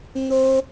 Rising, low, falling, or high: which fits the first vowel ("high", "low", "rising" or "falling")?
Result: high